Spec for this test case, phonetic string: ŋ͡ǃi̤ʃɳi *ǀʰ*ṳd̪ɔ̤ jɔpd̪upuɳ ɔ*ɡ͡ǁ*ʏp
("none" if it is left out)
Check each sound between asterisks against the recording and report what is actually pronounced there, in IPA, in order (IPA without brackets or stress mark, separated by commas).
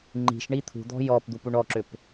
t̪ʰ, ǁ